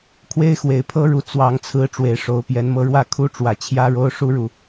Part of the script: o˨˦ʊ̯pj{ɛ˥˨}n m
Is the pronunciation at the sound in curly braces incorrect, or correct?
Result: incorrect